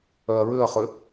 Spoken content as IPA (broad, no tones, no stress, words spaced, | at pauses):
œɐ̯ɹʏɐ̯χʏ